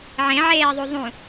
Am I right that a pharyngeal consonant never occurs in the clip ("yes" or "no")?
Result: no